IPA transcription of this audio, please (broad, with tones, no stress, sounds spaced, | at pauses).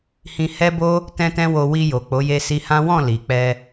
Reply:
h ĩ˧ h ɛ˦ b o˦ | t ɛ̃˦ t ɛ̃˦ w o˧ w i˧ j o˨ k͡p o˨˦ j e˦ s i˧ h ã˦ w ɔ̃˦˨ l i˨ k͡p ɛ˧